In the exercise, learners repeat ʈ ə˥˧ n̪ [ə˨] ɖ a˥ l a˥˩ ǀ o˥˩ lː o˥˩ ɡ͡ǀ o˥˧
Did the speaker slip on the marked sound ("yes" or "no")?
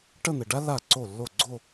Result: no